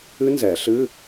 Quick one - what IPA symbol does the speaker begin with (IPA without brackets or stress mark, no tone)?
ɨ